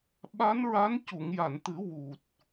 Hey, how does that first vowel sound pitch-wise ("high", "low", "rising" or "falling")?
rising